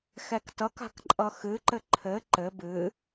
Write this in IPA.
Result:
xɛktʌk a̤kǃʼʌxɨǃɘ ǃʰɘ ǃɘ bɨ

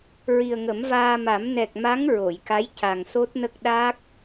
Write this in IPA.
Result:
ɹi˨˩ə̯ŋə˨˩˦mvaː˧ma˨˩˦m nɛ˨˩k̚ma˧˥ŋ ɹo˨˩˨jka˧˥j ca˨˩ŋso˦˥t̚nə˦˥k̚ ɗa˦˥k̚

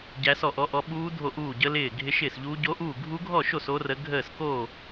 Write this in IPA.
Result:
ɟæ˦˥sɔ˥˧ʔɔ˦˥ʔɔ˦˥ ɓuː˦˥ dʱo˥˧ʔuː˥˧ɟə˦˥ lɪː˥˧ ɡʱɪ˦˥ʃɪː˥˧sʎuː˦˥ ɟo˦˥ʔuː˥˧ ɡʱu˦˥ɡʱɔ˥˧ʃo˥˧s o˦˥rə˦˥ ɡʱəː˥˧sko˥˧

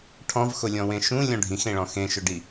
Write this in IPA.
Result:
ʈʰɔ̃vxʊlʲɔ̃wẽ ʃũlʲɔ̃ ɖʱĩxẽɭɔ̃ xẽʃʊɖi

